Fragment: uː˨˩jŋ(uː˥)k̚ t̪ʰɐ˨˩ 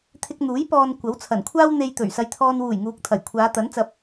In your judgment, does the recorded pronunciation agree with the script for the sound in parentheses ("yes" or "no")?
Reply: no